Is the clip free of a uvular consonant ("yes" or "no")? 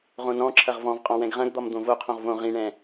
no